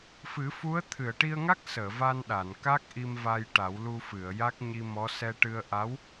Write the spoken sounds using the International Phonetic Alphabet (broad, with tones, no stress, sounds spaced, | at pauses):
f ɨ˨˩˦ f u˧˥ ə̯ t̪ʰ ɨ˨˩˨ ə̯ ʈ i˧ ə̯ ŋ a˦˥ k̚ s əː˨˩˨ v a˧ n ɗ a˨˩˨ n k a˦˥ k̚ ʔ i˧ m v a˧ j ʈ a˨˩˦ w l u˧ f ɨ˨˩˨ ə̯ j a˦˥ k̚ ɲ i˧ m ɔ˧˥ s ɛ˧ ʈ ɨ˧ ə̯ ʔ a˧˥ w